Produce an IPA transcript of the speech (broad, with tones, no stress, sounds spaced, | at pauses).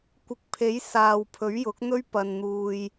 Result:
kʷ ɪ˨ k̚ pʰ e˨˥ j s aː˨ w pʰ ɵ˨˥ ɥ j ʊ˨˥ k̚ n̪ ɵ˥ ɥ p ɐ˨ n n̪ uː˨ j